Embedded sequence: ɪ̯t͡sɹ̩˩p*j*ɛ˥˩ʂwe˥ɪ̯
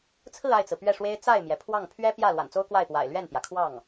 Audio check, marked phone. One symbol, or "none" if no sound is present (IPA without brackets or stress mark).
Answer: ɥ